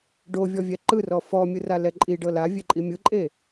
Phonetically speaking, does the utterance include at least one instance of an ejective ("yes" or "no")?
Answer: yes